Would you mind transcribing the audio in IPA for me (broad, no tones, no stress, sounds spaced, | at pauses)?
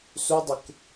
s u dˤ ɪ k